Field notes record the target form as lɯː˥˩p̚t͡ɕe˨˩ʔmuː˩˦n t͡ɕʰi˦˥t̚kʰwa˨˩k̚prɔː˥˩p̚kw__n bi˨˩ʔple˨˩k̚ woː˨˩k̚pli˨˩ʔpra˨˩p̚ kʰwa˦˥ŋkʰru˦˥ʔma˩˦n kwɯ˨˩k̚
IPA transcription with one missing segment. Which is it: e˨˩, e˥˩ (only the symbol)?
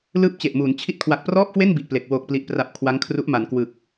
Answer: e˥˩